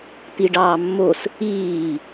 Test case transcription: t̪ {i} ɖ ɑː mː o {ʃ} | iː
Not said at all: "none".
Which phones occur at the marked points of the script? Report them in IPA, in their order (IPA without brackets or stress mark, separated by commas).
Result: i, s